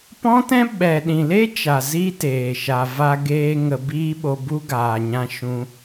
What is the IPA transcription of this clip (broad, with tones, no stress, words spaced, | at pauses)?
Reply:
pɔ̃˦tɛ̃˦ ɓɛ˨ ɗĩ˨le˦ t͡ʃa˨ zi˦teː˨ ʃa˨va˧ɡeː˧ ŋə˧biː˦ɓo˧bu˦ ɡaː˨ɲã˧ ʃũ˧